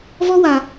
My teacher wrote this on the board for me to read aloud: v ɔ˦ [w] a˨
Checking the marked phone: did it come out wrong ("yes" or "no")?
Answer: no